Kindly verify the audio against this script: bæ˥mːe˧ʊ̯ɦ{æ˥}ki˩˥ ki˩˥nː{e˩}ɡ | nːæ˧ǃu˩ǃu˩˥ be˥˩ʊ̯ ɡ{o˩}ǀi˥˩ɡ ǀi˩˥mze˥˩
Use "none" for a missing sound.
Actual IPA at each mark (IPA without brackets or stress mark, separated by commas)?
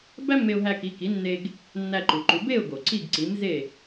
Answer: æ˧, e˧, o˩